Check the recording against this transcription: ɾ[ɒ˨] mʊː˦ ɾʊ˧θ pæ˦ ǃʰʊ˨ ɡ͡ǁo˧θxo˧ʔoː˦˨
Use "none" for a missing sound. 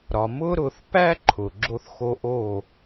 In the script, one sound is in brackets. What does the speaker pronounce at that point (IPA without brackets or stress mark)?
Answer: ɒ˨